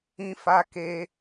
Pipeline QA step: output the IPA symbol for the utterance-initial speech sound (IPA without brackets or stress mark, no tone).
ĩ